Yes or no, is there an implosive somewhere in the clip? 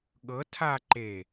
yes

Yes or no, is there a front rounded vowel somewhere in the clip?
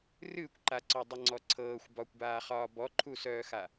yes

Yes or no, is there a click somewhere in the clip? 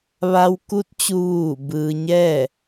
no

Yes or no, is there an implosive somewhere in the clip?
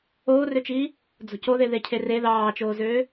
no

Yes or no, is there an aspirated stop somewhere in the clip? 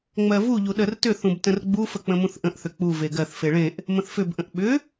no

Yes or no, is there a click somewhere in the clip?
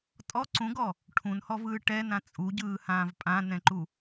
yes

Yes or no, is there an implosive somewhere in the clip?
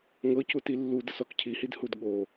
yes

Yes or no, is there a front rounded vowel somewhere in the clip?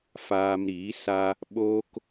no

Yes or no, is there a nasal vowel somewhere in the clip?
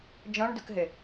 yes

